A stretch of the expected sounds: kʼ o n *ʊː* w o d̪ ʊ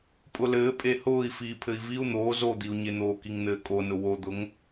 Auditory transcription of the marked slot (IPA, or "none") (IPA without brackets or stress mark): ʊ